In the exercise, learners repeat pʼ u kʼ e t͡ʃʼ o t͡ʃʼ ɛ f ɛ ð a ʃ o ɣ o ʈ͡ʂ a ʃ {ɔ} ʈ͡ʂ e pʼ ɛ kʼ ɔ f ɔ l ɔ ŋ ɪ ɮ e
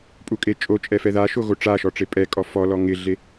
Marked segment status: correct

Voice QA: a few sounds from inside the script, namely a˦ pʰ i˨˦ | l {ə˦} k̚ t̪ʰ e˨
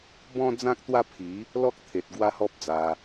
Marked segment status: incorrect: ɔ˦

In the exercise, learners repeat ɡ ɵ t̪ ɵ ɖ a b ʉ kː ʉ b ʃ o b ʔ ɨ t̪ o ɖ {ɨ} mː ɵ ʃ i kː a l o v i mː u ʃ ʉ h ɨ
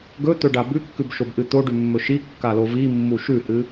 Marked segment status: incorrect: ʉ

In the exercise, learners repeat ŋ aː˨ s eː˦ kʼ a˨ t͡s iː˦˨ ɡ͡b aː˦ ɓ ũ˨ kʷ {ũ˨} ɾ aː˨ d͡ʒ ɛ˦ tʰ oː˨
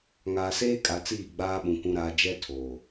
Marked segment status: correct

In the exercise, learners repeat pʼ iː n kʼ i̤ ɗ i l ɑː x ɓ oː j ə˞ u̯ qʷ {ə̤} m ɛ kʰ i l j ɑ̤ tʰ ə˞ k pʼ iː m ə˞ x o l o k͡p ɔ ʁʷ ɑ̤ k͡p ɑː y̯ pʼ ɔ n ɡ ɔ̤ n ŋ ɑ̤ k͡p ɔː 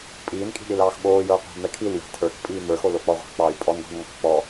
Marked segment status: incorrect: ɑ̤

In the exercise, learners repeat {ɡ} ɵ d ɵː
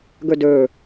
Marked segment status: correct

